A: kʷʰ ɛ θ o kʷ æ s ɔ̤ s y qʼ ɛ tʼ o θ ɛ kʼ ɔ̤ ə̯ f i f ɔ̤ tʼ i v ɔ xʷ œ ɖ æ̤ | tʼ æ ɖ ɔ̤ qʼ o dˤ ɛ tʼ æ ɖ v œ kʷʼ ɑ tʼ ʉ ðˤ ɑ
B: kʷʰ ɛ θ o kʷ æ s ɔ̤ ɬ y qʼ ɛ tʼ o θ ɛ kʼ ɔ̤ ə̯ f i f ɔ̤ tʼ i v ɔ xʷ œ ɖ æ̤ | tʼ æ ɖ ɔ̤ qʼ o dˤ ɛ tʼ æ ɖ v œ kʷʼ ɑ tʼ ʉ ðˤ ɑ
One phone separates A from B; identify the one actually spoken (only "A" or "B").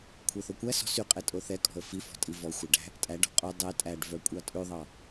A